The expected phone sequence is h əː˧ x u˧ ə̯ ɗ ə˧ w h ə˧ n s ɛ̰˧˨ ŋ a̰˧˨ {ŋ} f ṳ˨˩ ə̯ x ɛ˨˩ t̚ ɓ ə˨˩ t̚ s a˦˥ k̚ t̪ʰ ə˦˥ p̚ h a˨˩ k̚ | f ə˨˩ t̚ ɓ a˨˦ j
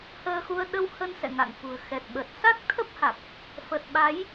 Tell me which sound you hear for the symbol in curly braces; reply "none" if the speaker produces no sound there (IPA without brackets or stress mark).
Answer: ŋ